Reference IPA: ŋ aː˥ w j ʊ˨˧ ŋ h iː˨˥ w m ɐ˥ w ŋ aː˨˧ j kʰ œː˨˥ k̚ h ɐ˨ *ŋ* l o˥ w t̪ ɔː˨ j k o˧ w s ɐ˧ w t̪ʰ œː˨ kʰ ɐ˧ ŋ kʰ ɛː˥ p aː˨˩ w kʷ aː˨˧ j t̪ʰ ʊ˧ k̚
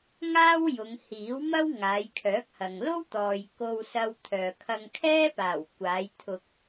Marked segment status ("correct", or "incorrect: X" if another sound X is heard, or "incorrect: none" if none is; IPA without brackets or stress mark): correct